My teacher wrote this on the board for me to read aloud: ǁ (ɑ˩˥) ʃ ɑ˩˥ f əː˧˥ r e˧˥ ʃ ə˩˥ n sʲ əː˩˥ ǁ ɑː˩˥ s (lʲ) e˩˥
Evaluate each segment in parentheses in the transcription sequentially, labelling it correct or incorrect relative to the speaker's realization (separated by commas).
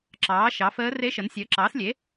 incorrect, correct